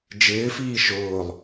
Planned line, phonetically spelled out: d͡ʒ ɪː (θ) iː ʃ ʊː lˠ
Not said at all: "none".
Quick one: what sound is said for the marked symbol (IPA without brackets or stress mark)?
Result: f